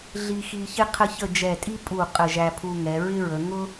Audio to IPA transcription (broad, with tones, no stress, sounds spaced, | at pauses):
ɮ i˧ x i˧ ç ɪ˥ qʰ ə˥˧ ç ə˥˧ d͡ʒ ɛ˧˩ tʼ i˥ pʼ u˧˩ qʼ ə˧˩ ʒ æ˧ pʰ u˧ ŋ ɛ˩˧ ɹ ɪ˥ ɹ ə˩˧ ŋ ʊ˥